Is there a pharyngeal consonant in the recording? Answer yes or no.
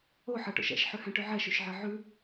yes